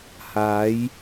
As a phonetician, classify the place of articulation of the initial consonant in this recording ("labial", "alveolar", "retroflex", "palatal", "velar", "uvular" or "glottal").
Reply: glottal